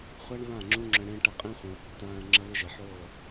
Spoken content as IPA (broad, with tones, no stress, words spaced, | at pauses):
χʷa˦ɳ βã˦˨ŋ͡ǁũ˦ŋ͡ǁə̃˧ ɽẽ˦ ʈɐ˧qʼẽ˦χʷẽ˨ə̯ tːãː˧ə̯ ŋ͡ǁɐ˦βɪ˦ʒe˨ħoː˦˨